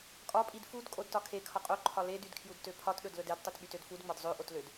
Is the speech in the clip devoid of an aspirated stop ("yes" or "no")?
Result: no